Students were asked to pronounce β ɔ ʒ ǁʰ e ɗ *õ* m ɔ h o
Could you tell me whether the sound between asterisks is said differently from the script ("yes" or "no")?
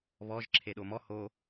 yes